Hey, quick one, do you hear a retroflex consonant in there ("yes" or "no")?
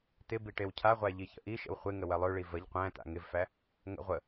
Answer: yes